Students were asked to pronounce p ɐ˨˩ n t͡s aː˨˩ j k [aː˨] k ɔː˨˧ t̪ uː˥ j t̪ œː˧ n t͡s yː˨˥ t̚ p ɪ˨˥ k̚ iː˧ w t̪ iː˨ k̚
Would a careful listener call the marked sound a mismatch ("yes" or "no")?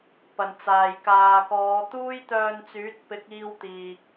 no